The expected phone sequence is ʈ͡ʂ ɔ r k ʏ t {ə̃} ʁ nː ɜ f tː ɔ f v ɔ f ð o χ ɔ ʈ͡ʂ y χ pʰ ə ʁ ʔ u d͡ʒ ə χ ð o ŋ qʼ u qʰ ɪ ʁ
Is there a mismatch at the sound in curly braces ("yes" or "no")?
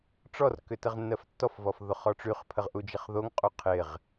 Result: yes